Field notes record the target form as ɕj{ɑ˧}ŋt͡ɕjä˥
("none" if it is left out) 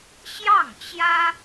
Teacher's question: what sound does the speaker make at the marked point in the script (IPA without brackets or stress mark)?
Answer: ɑ˥˩